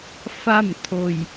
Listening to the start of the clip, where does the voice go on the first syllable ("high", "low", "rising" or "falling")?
falling